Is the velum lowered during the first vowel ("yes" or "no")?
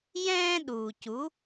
yes